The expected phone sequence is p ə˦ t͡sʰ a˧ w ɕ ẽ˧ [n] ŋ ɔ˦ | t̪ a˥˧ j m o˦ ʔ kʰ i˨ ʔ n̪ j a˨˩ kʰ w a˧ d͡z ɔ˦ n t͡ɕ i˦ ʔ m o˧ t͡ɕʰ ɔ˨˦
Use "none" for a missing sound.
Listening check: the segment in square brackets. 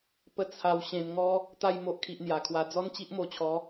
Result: n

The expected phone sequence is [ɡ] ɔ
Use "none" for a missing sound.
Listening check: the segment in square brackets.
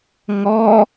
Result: ŋ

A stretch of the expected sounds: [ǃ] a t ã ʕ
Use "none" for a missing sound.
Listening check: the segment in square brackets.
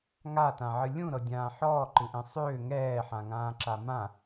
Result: ŋ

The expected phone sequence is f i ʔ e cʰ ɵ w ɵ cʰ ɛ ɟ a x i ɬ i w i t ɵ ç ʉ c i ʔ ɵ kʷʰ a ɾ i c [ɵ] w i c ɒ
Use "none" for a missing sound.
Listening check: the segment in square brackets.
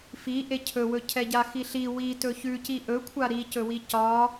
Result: ɵ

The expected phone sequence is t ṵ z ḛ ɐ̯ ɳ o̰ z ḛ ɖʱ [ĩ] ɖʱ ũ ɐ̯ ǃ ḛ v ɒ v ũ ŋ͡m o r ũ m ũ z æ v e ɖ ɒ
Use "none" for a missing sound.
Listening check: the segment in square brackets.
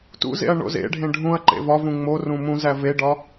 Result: ẽ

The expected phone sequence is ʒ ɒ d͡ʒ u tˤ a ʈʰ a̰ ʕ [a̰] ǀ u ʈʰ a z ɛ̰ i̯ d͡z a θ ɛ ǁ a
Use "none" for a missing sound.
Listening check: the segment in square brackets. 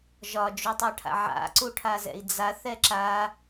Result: a̰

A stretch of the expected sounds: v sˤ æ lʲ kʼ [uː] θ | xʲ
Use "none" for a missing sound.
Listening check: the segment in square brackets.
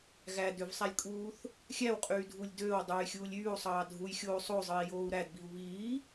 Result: uː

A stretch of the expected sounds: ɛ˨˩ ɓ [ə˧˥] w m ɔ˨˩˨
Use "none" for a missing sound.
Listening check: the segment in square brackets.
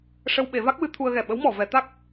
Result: ə˧˥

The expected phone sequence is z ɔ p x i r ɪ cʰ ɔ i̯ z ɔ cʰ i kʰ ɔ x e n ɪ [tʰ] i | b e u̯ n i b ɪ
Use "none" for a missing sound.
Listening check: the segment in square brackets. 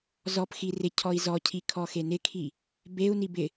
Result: kʰ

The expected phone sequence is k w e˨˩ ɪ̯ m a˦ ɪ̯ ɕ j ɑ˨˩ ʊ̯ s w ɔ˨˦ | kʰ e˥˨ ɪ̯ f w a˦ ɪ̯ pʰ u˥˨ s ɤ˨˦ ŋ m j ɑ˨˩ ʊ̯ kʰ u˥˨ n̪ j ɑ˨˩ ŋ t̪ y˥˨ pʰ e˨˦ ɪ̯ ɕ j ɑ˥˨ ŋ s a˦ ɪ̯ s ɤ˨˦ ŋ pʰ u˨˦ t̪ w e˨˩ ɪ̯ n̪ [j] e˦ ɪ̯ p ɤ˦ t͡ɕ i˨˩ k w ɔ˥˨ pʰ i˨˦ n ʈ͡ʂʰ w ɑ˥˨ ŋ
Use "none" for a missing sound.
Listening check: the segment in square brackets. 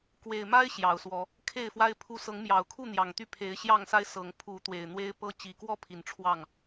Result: w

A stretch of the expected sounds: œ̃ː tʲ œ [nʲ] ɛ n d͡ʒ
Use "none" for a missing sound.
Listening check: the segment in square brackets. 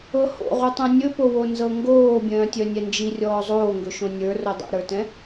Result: nʲ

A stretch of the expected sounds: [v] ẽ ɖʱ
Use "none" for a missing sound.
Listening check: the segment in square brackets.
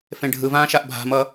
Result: f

